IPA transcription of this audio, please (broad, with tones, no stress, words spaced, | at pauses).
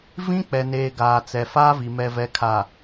vĩ˦k͡pɛ˨neː˨ ɡaː˨t͡sɛ˨faː˦vi˨ mɛ˨vɛ˨kʰa˨